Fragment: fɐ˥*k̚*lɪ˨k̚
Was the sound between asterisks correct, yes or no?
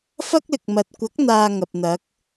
yes